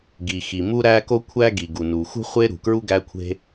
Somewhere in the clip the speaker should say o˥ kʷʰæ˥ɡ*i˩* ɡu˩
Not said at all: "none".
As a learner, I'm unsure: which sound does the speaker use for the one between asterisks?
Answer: i˩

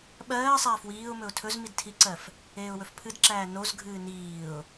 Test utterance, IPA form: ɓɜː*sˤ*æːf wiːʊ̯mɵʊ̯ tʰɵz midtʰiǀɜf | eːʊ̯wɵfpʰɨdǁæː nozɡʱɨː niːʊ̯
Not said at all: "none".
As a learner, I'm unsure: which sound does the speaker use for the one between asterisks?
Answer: sˤ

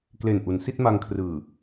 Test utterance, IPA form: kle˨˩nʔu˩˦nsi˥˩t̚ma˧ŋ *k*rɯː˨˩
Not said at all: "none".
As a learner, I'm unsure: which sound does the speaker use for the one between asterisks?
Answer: kʰ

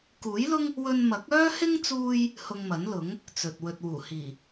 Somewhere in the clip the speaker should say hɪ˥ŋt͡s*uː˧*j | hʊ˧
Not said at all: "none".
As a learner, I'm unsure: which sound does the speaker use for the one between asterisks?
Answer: uː˧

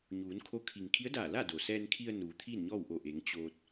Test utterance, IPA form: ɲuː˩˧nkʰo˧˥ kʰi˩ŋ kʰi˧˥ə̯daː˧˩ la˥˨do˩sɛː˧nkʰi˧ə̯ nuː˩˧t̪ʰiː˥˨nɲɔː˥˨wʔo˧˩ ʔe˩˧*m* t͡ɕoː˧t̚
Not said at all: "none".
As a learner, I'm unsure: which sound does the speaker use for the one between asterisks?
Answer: ŋ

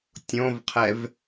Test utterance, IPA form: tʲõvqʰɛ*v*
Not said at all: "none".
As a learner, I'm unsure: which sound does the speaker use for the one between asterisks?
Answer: v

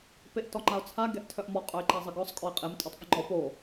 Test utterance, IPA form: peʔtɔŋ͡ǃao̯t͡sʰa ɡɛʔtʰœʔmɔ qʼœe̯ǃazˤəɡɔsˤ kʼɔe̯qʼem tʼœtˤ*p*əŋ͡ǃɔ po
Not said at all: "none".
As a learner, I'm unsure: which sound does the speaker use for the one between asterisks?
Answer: p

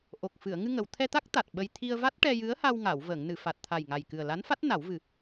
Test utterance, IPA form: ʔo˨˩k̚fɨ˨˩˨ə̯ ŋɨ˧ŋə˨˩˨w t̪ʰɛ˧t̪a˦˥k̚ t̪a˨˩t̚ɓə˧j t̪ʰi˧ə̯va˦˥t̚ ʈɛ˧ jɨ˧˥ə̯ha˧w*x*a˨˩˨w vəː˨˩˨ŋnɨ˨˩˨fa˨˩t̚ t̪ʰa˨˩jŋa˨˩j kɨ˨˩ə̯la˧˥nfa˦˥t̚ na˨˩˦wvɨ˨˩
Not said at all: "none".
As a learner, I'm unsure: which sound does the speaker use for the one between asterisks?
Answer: ŋ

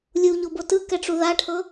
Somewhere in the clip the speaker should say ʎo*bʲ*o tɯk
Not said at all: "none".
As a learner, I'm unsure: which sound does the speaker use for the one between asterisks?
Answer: b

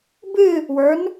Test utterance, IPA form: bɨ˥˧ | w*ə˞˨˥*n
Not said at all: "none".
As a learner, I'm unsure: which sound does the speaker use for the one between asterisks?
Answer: ə˞˨˥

